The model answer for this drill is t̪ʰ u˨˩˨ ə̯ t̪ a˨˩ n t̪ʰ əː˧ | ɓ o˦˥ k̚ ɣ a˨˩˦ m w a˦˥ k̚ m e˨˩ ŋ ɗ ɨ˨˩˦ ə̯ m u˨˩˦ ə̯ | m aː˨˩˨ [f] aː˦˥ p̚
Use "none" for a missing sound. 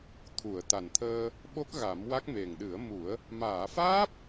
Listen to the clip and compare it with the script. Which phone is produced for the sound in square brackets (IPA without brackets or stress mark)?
f